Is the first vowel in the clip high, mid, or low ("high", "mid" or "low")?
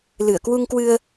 high